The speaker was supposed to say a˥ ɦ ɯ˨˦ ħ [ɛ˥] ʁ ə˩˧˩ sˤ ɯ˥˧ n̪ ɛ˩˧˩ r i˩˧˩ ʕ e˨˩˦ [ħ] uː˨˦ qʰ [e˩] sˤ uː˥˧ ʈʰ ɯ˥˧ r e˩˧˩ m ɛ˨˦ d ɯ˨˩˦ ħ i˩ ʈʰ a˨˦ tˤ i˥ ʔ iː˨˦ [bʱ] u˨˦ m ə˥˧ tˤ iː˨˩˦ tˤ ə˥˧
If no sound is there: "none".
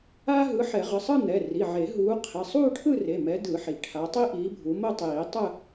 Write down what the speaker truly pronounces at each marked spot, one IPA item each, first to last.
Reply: ɛ˨˩˦, ɦ, e˩˧˩, bʱ

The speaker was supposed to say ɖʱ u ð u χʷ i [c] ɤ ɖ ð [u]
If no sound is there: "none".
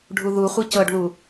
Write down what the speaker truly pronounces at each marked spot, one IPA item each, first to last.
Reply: c, u

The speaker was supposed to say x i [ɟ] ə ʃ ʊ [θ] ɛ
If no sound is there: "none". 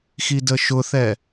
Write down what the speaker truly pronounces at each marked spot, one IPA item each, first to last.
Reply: d, θ

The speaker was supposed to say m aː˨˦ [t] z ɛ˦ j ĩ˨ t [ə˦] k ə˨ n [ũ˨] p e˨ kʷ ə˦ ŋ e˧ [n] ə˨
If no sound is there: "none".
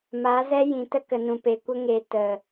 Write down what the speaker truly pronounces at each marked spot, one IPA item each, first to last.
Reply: none, ə˦, ũ˨, t

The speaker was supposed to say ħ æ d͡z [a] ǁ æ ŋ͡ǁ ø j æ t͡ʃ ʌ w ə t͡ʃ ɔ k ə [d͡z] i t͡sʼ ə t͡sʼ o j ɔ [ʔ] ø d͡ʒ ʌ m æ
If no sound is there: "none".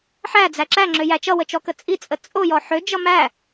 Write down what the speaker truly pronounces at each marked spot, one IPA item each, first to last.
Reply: æ, t͡sʼ, ħ

